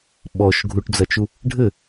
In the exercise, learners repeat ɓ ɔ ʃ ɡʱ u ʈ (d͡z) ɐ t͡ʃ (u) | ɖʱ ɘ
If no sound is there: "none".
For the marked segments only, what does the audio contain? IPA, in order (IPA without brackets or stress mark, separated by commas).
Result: d͡z, u